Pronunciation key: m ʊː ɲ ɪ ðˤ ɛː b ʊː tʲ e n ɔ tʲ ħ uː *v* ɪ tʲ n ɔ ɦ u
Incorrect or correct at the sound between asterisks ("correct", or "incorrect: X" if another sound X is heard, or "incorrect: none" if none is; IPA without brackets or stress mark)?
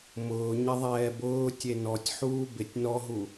incorrect: b